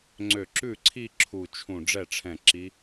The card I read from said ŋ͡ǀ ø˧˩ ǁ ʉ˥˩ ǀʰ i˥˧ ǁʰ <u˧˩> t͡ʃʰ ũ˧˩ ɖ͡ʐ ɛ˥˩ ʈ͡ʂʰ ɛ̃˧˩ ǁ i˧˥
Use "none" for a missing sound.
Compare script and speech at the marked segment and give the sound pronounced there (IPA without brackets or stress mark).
u˧˩